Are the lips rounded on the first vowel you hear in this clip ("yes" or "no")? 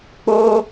yes